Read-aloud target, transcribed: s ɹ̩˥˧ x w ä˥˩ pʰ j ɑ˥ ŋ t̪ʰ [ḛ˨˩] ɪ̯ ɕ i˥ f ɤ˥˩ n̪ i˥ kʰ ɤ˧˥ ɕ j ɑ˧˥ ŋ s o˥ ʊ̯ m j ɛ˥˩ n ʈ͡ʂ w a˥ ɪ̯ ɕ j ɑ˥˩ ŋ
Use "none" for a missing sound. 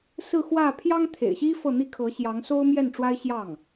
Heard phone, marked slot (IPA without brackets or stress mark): ḛ˨˩